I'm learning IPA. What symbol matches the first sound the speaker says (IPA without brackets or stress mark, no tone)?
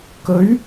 k